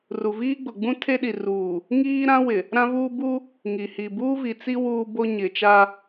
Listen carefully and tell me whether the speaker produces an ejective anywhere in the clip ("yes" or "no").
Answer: no